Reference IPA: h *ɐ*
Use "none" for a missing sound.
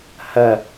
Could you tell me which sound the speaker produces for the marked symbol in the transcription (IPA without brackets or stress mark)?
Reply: ɐ